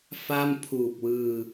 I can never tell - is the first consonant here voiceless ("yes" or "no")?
yes